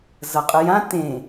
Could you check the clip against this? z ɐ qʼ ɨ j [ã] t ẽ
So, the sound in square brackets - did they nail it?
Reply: yes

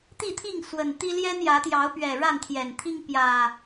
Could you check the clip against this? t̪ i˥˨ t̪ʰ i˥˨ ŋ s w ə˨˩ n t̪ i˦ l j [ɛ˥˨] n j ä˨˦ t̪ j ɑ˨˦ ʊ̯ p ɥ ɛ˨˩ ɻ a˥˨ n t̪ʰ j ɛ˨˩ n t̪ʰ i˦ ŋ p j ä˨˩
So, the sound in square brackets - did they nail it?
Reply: no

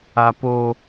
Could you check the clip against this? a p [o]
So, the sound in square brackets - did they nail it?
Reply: yes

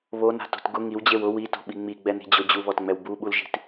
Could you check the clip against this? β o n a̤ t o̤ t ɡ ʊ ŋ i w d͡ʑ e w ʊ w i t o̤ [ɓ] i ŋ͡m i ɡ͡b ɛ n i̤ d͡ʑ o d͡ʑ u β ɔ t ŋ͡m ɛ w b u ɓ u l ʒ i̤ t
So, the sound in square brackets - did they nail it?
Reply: yes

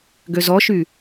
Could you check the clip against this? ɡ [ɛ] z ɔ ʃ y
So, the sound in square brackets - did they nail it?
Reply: no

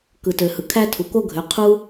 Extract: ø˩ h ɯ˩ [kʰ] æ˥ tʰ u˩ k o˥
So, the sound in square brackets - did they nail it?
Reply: yes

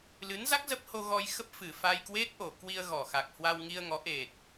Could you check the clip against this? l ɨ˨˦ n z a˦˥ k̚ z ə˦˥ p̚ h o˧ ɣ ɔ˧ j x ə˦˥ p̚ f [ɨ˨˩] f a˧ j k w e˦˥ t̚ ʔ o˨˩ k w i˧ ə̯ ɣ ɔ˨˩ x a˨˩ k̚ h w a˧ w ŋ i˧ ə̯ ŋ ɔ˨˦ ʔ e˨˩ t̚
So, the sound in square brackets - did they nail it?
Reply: yes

